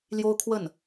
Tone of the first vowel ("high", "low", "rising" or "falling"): high